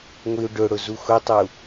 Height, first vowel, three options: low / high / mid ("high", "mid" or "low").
high